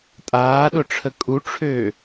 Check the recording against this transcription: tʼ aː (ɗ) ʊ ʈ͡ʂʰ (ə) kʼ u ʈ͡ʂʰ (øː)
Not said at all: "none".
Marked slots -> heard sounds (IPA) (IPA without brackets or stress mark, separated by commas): ɗ, ə, øː